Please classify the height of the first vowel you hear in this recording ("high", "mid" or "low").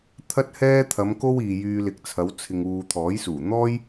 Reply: low